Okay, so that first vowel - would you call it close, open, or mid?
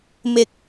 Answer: close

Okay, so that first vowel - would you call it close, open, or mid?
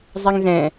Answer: mid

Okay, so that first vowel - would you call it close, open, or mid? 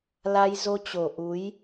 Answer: open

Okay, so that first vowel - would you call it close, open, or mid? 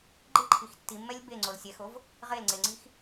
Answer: close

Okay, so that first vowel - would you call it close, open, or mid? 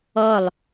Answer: mid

